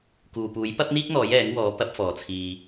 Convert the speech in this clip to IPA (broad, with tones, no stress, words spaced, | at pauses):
kuː˨puː˨˥j pɐ˥p̚n̪iː˥k̚n̪ɔː˨˥j ɛː˨˥ŋwɔː˨˥ pɐ˨˥p̚fɔː˨t͡sʰiː˧